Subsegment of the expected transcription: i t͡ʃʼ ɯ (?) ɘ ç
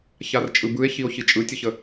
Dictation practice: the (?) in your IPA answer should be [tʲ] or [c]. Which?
tʲ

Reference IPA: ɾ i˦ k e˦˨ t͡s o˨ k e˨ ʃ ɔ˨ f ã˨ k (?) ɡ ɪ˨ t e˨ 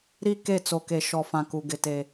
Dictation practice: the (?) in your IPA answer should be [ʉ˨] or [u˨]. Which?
u˨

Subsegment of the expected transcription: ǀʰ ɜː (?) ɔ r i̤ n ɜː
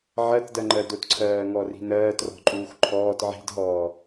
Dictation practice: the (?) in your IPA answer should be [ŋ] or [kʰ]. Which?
ŋ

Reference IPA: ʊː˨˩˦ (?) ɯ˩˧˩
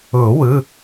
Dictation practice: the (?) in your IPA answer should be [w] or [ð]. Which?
w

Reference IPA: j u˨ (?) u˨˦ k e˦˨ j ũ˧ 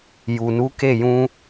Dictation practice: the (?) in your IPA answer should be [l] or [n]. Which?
n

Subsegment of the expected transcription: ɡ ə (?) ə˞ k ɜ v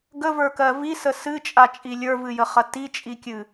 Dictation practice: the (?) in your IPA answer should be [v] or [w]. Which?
v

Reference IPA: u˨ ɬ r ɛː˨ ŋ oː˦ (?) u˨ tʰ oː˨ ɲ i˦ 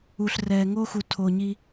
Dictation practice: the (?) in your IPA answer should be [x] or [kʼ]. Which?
x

